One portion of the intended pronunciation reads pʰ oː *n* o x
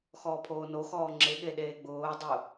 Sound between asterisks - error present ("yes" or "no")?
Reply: no